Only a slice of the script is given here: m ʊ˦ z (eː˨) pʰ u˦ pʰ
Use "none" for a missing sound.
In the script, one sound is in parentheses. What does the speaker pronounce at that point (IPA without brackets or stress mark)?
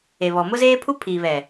eː˦